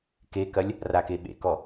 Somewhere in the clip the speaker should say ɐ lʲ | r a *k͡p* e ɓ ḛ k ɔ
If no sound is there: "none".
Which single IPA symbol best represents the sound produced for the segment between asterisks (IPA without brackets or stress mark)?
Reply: k